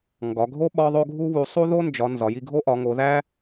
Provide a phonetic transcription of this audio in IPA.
ŋ ɡ ɒ˨˦ ɡʱ o˥ ɓ ɒ˥ ðˤ o˥ ɡʱ u˥ β u˨˦ sˤ u˥ ð o˥ n d͡ʒ ɒ˨˦ n z ɒ˨˦ j i˥ ɡʱ o˥ ʔ ɒ˨˦ ŋ o˨˦ ð æ˥

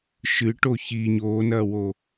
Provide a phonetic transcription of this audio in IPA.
ʃ ɨ ʈ o ç i ɲ oː n ɐː w o

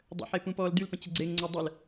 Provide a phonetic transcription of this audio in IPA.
dˤ ə̰ ħ e p ũ p ɔː l d y l p ə̃ t͡ɕ ɪ ɡ͡ǀ e ŋ ŋ͡ǀ o dˤ ə l

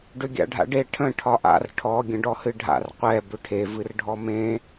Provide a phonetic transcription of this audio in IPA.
ɖ ʏ ɡʲ a̰ ɖʱ a̰ ɖ e ʈʰ ə̃ ʈʰ ɒ ʔ a̰ r ʈʰ ɔ ɡʲ ə̃ ɖ ɔ h ɨ ɖʱ a̰ r qʷ ɛ b ʏ ʈʰ e v ɨ r ɖʱ ɔ m ẽ

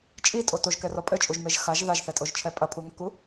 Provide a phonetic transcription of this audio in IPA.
t͡ʃʼ i tʼ o t o ʒ k ɛ r ɔ pʼ ɘ t͡ʃʼ u ʒ m e ʒ x a ʒ ð a ʒ θ ɛ tʼ o ʒ t͡ʃʰ ɛ pʼ ɐ pʰ u ŋ ɘ k u

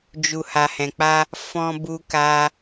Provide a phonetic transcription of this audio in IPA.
d͡ʒ u˨ h a˨ h ɛ̃˨ k͡p a˧ | f ɔ̃˧ b u˧ k a˧

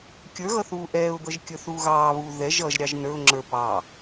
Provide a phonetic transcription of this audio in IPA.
kʲ ə˞ ɣ ʌ θ uː ʔ ɛː ʊ̯ d̪ ʌ ʒ kʲ ə˞ θ uː ɣ ɑː β uː ð ɛ ʒ ʌ ʒ ɾʲ ɑ ʒ n ə˞ ʊ̯ ŋ͡ǁ ə˞ p ɑː

